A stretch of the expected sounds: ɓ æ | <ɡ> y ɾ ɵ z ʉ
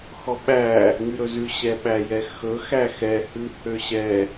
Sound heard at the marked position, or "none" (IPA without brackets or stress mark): ŋ